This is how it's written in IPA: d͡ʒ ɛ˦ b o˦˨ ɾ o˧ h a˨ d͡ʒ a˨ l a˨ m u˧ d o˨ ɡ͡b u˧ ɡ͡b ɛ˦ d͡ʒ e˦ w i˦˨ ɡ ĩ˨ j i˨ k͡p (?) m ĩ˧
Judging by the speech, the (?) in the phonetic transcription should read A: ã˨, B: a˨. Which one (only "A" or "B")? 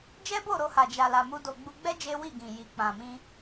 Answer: A